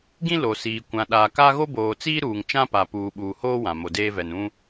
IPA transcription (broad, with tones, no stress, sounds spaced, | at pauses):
ɡ ĩ˦ l o˨ s iː˨ kʷ ã˨ ɗ aː˨ k a˦ ɣ o˦ b oː˨ t͡s iː˦ ɾ uː˨ ŋ t͡ʃ ã˦ p a˨ p uː˨ ɓ uː˨ h oː˦ w ã˨ m o˨ d eː˦ v ɛ˨ n ũ˦